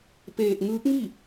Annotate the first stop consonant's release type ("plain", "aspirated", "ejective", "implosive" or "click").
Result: plain